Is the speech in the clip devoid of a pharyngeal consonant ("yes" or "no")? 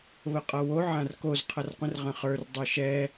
no